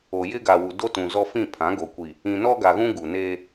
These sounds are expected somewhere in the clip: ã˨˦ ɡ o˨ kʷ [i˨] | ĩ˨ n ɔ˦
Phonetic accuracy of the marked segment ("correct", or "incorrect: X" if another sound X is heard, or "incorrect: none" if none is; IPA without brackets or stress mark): correct